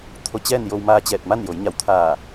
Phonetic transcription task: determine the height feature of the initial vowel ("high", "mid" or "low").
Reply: mid